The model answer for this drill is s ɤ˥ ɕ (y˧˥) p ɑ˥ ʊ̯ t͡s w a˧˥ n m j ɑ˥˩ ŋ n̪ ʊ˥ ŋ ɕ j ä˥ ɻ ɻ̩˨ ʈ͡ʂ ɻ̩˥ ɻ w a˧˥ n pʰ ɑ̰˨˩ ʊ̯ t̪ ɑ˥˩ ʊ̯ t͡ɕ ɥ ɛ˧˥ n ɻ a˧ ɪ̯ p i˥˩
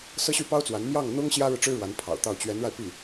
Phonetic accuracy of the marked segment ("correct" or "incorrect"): incorrect